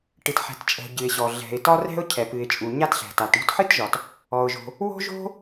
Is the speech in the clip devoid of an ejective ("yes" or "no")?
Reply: no